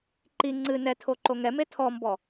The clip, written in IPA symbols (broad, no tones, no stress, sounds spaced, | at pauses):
ǃ i ŋ͡ǀ ɨ n ɛ tʰ o ǃ o ŋ ɛ m e tʰ ɔ m b ɔ